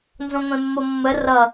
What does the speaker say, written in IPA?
n z õ ŋʷ ẽ mː o mː ə r ʌ

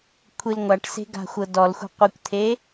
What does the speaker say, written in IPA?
kʷʰ i l ŋʷ a ʈ s e̤ ɡ a̤ xʷ ɤ d ɔ l xʷ ɛ̤ qʷ i kʷ t̪ʰ e

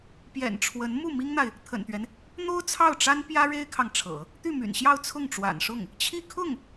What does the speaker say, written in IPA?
p j ɛ̰˨˩ n ʈ͡ʂʰ w ə˧˥ n m u˥˩ m i˥ ŋ n̪ a˨ ɪ̯ | t̪ʰ ə̰˨˩ n t̪ ɥ ɛ˦ n | n̪ o˥ ʊ̯ t͡sʰ ɑ˥˩ ʊ̯ ʈ͡ʂ a˥ n p j ä˥ ɻ e˥ ɪ̯ kʰ ɑ˨ ŋ ʈ͡ʂʰ ɤ̰˨˩˦ | t̪ y˥˩ m y̰˨˩ n ɕ j ɑ˥˧ ʊ̯ t͡sʰ ʊ˥˩ ŋ ʈ͡ʂ w a̰˨˩ n ʂ ʊ˥˩ ŋ | t͡ɕʰ i˥˧ kʰ ʊ˥˩ ŋ

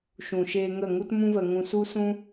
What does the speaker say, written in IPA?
ʃ ũ˨ ʃ eː˧ ŋ ə˦˨ ŋ u˦ t m ũ˦ v ə˧ ŋ ũ˧ s u˦ s ũ˦

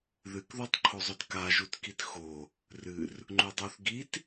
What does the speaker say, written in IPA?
ð ɨ k ð o tˤ ǃʰ o zˤ ɵ d k a ʒ u t k i t x o | r ɨ r | ŋ͡ǃ u dˤ o θ ɡ i t

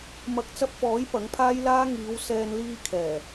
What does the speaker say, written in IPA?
m ɐ˨˥ k̚ t͡s ɐ˧ p̚ f ɔː˨˥ j p ɐ˨˥ ŋ pʰ aː˥ j l aː˥ ŋ iː˨˧ w s ɛː˧ n l iː˧ kʰ ɛː˨˩

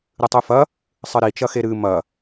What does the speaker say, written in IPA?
ɾ ɨ tˤ ʉ f ɐ | sˤ ɨ ɾ i t͡ʃ ɐ x e ɾ ɨ m ɐ

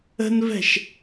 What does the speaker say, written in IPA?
ə̤ n v ɛ̤ ʃ

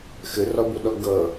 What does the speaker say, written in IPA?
x ɘ r ɒ b o ɗ ɒ ɡ ʌ

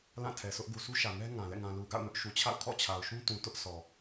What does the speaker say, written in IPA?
l ã˦˨ tʰ ɛ˨ s ʊ˦ ʔ ɡ u˨ s u˦ ʃ ä˨ ŋ ɛ˦ ŋ ã˨ l ɛ̰˦˨ ŋ ã˨ l u˨ ɡ a̰˦˨ ʊ̯ n ʊ˦ ʔ ʃ u˨ t͡ɕʰ a̰˦˨ ʊ̯ kʰ ɔ̰˦˨ t͡ɕʰ a˨ ʊ̯ ʃ ũ˦ t ũ˨ t ʊ˦ ʔ s ɔ˨

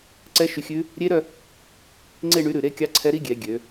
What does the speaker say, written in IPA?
ǀ ɛ˦˥ ʃ y˧ xʲ ʉ˦˥ | ɾʲ e˦˥ ɾ œ˥˧ | ŋ͡ǀ e˥˧ ɳ y˨˥ ɾ ʉ˨˩ ɾ e˦˥ kʲ ɑ˦˥ ǀʰ ɛ˦˥ ɾ i˦˥ ɡʲ ɛ˩˧ ɡʲ ø˩˧

